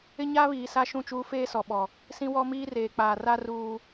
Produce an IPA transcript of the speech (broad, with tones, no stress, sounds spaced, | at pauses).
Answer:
ɪ˦ ɲ aː˦ β iː˨ s a˦ ʃ ũ˦˨ t͡ʃ uː˦ f eː˦ s ɔ˨ ɓ ɔ˨ | s ĩ˦ w ɔ˦ m iː˦ r eː˨ k͡p aː˨ r a˦ r uː˦